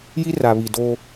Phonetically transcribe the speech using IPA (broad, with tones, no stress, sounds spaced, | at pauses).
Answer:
j i˦ r a˨ β i˨ d o˦